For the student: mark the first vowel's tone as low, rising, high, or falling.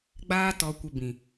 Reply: high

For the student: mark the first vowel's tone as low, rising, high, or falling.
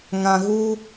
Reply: low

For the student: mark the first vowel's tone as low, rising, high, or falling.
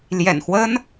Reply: low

